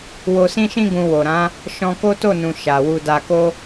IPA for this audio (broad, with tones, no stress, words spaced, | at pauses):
wo˧sĩ˦ʃĩ˦ ɡũ˧wo˨ɾã˨˦ | ʃɔ̃˧ko˦to˦˨nũ˨ ʃa˨wu˧ da˧ko˦